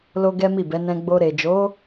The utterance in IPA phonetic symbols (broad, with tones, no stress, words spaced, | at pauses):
lo˧ ɡɛ˦mi˦˨bɛ˨˦ nɛ̃˧ ɡ͡bo˧ ɾe˨d͡ʒo˨˦